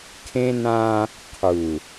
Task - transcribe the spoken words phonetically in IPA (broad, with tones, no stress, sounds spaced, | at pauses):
kʰ ẽ˦ n ã˦ | qʰ u˨